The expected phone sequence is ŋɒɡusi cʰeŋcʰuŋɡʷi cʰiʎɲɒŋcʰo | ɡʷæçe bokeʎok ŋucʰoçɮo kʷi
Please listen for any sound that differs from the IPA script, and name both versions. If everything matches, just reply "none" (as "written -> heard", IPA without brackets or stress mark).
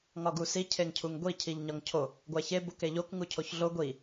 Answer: kʷ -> ɡʷ